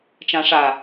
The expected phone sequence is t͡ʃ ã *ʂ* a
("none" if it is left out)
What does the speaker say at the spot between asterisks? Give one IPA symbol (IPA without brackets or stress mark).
ʂ